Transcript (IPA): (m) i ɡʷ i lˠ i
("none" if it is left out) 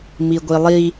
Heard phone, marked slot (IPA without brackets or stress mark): m